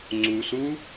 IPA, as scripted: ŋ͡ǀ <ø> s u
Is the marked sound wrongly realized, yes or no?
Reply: yes